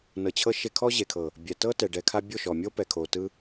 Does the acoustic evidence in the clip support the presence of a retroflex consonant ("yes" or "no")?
yes